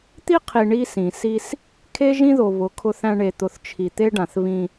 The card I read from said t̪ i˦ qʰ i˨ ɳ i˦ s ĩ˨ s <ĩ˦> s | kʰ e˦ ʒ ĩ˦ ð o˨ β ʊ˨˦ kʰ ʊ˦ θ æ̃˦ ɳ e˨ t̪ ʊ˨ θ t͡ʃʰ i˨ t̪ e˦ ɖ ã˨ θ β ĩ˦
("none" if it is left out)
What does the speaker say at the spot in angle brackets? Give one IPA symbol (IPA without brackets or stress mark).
i˦